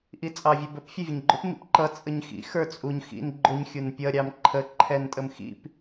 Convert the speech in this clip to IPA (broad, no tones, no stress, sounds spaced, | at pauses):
ʔ i t͡sʼ ɑ vʲ ə b ə p fʲ ə vʲ ə ɲ ɡ͡ǃ ʊ p m ḭ p ǃ ʌ t͡sʼ ə ɲ x ḭ x ə˞ t͡sʼ u ɲ x ḭ n ɡ͡ǃ ʊ ɲ xʲ u n pʲ ʌ ɾʲ ɑ m ǃʰ ə ǃʰ ɛ n tʼ ə m x ḭ p